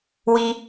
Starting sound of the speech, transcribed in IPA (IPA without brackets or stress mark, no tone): w